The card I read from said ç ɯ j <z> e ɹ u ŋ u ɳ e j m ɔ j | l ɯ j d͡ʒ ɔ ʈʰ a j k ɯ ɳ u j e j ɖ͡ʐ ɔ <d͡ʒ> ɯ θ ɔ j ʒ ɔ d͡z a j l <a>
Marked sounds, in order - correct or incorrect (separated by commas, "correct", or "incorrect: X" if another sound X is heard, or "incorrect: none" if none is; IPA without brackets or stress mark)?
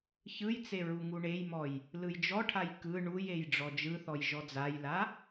incorrect: t͡s, correct, correct